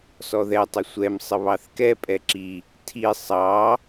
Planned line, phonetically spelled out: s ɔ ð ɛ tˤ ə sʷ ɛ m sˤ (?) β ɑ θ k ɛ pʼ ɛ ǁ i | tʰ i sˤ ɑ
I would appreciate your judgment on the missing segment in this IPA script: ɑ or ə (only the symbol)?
ə